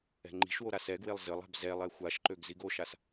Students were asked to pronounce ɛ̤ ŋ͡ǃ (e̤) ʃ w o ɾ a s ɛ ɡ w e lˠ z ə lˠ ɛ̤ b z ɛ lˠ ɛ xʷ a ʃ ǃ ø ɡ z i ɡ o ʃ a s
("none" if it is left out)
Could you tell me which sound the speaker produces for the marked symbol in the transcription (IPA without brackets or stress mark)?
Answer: i̤